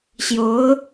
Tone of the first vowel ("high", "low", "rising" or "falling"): rising